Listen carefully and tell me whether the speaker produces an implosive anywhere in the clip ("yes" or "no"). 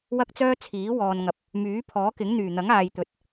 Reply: no